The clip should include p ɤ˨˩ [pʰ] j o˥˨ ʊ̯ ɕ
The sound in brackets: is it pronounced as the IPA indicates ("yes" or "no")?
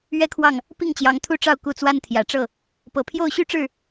yes